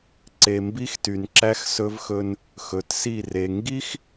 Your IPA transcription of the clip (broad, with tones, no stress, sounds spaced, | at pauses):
ǀ e˨ m b i˦ x t y˨ n ǁ æ˦ x s ɵ˦ v x ɵ˦ n | x ɵ˨ t s i˦˨ r e˨ ŋ ɡ i˦ x